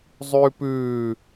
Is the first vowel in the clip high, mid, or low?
high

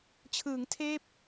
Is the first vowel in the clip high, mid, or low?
high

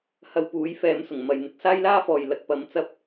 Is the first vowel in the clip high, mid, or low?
low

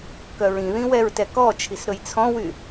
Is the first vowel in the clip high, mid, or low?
mid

